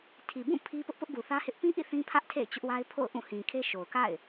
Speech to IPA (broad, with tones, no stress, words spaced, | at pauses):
tʰi˨ bũ˦˨ pʰi˦ pʊ˦ʔpʊ˦ʔɡu˨ θä˦hɪ˦ʔ pĩ˦ʔḭ˦˨ θĩ˦pʰä˦ʔ tʰḛ˦˨ɪ̯t͡ɕʊ˦ʔwa˦ɪ̯pʰo̰˦˨ʊ̯ ʔũ˦˨hĩ˨kʰe˦ ʃo˨ʊ̯ka̰˦˨ɪ̯